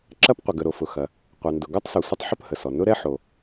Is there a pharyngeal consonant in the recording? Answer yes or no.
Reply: yes